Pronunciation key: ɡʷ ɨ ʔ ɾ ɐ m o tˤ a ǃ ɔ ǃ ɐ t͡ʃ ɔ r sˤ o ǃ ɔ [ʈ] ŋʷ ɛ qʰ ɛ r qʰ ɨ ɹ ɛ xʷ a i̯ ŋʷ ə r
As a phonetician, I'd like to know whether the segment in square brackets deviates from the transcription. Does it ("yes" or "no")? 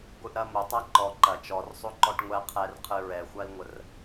no